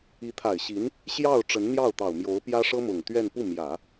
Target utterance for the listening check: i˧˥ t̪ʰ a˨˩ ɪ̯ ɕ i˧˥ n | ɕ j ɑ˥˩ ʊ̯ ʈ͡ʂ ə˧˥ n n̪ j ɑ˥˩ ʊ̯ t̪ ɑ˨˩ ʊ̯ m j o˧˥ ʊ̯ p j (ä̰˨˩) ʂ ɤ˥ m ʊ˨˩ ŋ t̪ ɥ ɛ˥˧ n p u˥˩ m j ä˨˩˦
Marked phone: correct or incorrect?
incorrect